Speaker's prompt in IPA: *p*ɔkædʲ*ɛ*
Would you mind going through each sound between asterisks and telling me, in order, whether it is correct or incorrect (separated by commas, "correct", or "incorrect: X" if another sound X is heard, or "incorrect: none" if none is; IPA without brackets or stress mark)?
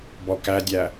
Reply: incorrect: b, incorrect: æ